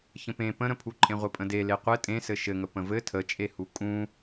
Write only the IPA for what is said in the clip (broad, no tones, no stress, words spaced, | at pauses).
çə̃pẽ pə̃ɾə̃pʰuǃʼẽ ʁʷɘpʼə̃dele qʷɘ tʼẽsɘ ʃɘŋə pə̃vɘ tʰət͡ʃʼehu kʼũ